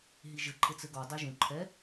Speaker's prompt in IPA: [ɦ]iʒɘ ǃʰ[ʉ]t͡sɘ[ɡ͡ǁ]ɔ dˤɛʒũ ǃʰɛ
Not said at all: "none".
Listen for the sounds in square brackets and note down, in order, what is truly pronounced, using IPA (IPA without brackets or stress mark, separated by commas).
ɦ, ɘ, ɡ